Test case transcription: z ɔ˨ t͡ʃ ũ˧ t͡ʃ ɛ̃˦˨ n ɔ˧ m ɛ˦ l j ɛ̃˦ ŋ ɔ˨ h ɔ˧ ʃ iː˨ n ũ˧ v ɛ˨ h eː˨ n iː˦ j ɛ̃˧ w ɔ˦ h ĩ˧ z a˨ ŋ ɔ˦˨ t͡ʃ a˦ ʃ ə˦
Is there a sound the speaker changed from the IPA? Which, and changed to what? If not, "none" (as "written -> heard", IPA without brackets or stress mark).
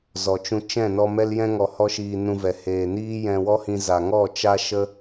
none